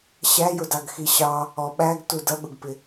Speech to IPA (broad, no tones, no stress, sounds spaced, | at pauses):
ɕ æ j ʊ d ɑ ɡ x i ɕ ɑ | ɔ ɓ æ ɡ t u d ʌ ɠ ʊ ɡ p ɪ